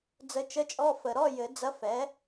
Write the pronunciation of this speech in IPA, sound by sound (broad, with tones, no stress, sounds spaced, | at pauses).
d͡z ə˧˥ t͡ʃ ə˧˥˧ t͡ʃʼ ɔ˧˥˧ f ə˨˩ ɾ ɔ˧˥˧ j ɘ˨˩˦ d͡z ɐ˧˥ f ɛ˩˥